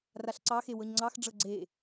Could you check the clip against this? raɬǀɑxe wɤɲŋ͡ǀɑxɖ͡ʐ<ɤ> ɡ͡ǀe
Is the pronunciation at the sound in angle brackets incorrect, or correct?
correct